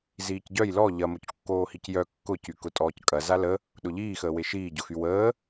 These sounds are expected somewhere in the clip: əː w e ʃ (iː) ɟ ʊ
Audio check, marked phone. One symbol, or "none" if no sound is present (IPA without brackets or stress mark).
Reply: iː